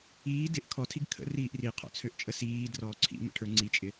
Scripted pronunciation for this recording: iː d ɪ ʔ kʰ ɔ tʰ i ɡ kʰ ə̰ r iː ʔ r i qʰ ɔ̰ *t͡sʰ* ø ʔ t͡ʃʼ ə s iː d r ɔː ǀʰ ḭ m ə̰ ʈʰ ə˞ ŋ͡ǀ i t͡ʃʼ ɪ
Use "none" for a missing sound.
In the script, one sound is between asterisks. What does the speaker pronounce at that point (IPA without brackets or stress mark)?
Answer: t͡sʰ